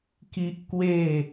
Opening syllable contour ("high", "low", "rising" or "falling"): high